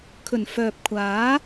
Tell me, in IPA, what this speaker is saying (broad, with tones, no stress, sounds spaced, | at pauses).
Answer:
kʰ ɵ˨˩ n f œː˨ p̚ kʷʰ aː˨˥